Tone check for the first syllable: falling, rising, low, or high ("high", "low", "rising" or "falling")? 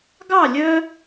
falling